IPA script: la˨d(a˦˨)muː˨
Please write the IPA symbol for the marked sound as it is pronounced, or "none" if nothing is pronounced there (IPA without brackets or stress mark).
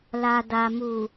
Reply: a˨